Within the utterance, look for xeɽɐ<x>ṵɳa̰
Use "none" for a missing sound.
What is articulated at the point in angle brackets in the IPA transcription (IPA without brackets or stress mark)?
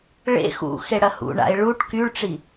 h